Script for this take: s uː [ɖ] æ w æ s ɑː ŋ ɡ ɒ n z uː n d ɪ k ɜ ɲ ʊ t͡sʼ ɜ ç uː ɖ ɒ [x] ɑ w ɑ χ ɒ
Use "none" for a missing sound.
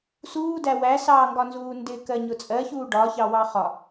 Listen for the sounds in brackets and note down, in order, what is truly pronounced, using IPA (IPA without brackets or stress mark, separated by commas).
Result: d, ç